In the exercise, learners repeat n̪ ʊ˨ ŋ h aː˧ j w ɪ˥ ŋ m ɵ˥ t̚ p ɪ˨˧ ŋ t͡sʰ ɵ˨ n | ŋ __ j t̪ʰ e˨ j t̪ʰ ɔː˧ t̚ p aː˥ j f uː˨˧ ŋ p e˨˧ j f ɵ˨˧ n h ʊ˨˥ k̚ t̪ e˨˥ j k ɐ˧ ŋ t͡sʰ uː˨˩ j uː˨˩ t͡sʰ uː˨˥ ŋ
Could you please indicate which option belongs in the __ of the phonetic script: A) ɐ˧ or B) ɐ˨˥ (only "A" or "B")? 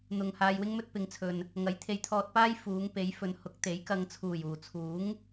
B